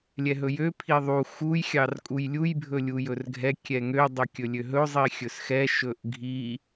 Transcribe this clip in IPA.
lʲ ɛ ɦ ɵ j ø pʰ i ðˤ u x u j xʲ ɑ r kʼ u j lʲ u j bʱ ɵ lʲ u j ɵ r ɡʱ ɛ kʲ ɛ ŋ ø dˤ ø kʲ ɵ lʲ ø ɦ ɵ zˤ i xʲ ɵ s x ɛ ʃ ɵ ʔ ɡʱ i

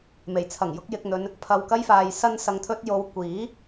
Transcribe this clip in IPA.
m e˨˩ j t͡sʰ ɐ˨˩ ŋ j ʊ˥ k̚ j ɪ˧ k̚ n̪ ɵ˧ n | pʰ ɐ˨ w k ɐ˧ j f aː˨ j s ɐ˧ n s ɐ˧ ŋ t̪ʰ ɵ˥ t̚ j o˧ w kʷ iː˨˥

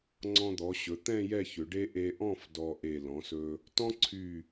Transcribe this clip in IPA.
ŋ͡ǀ ɔ̃˧ d̪ ɔ˩˧ ɕ ɵ˩˧ t̪ ɛ̃˥˧ j ɛ˥˧ ç ʏ˩˧ ɖ e˥ ʔ e˧ ʔ ɔ̃˥˧ f d ɔ˧ ʔ e˧˩ l ɔ̃˩˧ s ɵ˧ | t ɔ̃˥ ǀʰ y˧˩

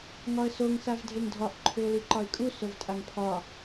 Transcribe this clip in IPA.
ŋ ɒ ə̯ s o ŋ s a v dʱ e ŋ dʱ ɒ ʔ ǃʰ ʏ ʊ̯ l i ǃ ɒ ɪ̯ kʼ u s o v tʼ a ŋ pʰ ɒ

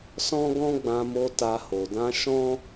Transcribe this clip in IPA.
s ɔ̃˦ ɡ ɔ̃˦ ɡ͡b ã˧ m o˧ t a˧ h o˨ d ã˧ ʃ ɔ̃˦

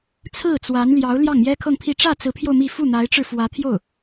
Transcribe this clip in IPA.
t͡sʰ ɹ̩˥˩ t͡s w a˧˥ n l j ɑ˧˥ ʊ̯ l j ɑ˥˩ ŋ m j ɛ˥ kʰ ɤ˥˧ ŋ pʰ i˥˧ ʈ͡ʂ ä˥˩ t͡s ɹ̩˧˥ pʰ j o˧ ʊ̯ m i˥˧ f u˥˩ n̪ a˧˥ ɪ̯ ʈ͡ʂ ɻ̩˧ f w ä˧˥ t̪ʰ j o˥˩ ʊ̯

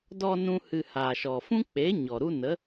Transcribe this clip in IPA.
d ɔ˧ n ũ˦ h ɨ˧ h a˨ ʃ ɔ˨ f ũ˦ k͡p e˨˦ ɲ ɔ˨ ɾ u˦ n ə˨˦

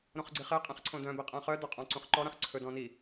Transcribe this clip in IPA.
ɾ õ χ ɡ͡ǀ i χ e qʼ ĩ χ ǀʰ õ d œ̃ b i qʼ æ̃ χ œ d œ qʼ ɔ̃ ǀ ũ χ ǃ ɔ ɾ æ̃ χ ǀʰ ɵ d ɔ̃ n i

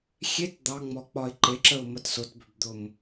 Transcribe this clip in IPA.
xʲ e t d̪ ɑ ŋ͡m ɔ k͡p ɒ ɪ̯ ǃ e ǁ ə ʊ̯ m ə t s ʊ t b ʏ b d̪ ʊ m

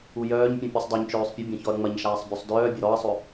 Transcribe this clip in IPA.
u j œː ɲ pʲ ũ pʲ u sˤ dˤ œ ɲ t͡ʃ œː sˤ pʲ ə bʲ ɐ̃ ç ɔ ɐ̯ ŋ͡m ɐ ɲ ʃ aː sˤ bʲ ɵ sˤ d œː bʲ ɐ ɾ ɔ ɐ̯ sˤ ɵ

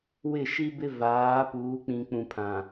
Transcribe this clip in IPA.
w ɪ˦˨ ʃ i˦ b ɪ˦ v aː˨˦ p uː˨˦ k͡p ĩ˨ k͡p ũ˨ pʰ ã˨

